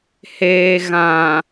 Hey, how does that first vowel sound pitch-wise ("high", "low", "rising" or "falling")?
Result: low